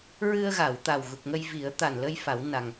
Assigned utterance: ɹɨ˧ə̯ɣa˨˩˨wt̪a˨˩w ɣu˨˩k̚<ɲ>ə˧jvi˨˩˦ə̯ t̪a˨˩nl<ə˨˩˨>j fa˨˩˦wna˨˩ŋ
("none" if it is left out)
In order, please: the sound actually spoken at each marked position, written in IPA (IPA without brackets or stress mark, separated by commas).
ŋ, ə˧